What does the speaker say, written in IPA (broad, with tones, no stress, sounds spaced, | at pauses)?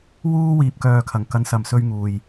w uː˥ w iː˧ p̚ k œː˧ kʰ ɐ˨ ŋ k ɐ˨˧ n s ɐ˨ m s ɵ˧ ɥ ŋ uː˨ j